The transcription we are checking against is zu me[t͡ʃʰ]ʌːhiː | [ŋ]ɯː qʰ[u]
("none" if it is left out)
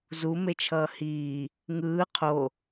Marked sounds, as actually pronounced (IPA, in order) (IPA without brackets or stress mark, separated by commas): t͡ʃʰ, ŋ, o